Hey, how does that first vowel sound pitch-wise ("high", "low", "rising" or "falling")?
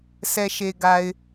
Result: low